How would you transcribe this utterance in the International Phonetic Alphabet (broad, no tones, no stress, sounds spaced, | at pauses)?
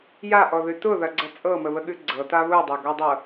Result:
j a ʔ ɔ ð ʉ t ʊ ð ɐ ɡ͡ǀ ɐ t͡sʼ ɤ m ə β ə ɠ ʉ ɡ͡ǀ ɤ t a β ʊ dˤ ɐ ɡ ɔ dˤ ɤ